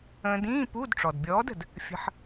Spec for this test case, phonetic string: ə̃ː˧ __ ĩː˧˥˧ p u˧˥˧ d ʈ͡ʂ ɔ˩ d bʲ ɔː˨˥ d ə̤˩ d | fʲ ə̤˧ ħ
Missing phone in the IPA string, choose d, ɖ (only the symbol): d